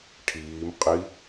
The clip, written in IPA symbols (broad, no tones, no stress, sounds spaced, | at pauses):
ʈʰ iː m qʼ i